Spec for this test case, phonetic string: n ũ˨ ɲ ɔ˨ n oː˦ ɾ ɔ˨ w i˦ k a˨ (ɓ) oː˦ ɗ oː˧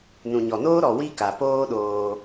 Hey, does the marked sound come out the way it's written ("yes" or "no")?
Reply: no